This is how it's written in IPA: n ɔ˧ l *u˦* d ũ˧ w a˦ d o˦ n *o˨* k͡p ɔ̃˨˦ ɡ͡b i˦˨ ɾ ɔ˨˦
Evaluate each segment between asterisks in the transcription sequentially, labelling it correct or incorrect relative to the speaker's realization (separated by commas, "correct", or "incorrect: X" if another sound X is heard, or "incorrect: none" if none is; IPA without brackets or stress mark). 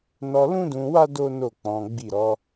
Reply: incorrect: ũ˦, incorrect: o˦˨